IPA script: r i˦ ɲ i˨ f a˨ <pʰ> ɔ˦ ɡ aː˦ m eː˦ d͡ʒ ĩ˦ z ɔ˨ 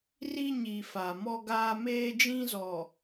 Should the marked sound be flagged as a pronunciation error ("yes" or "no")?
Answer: yes